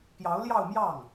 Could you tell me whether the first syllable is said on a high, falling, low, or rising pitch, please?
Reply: rising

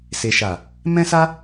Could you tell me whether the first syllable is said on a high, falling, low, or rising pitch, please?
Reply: low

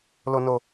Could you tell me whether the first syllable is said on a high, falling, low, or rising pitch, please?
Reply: low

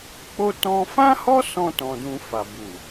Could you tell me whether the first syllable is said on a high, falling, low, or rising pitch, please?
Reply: high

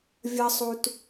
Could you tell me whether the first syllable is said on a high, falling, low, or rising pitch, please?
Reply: high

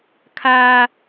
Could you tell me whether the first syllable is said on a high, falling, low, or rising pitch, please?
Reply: high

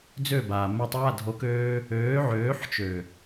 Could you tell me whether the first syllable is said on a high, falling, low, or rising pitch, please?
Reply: falling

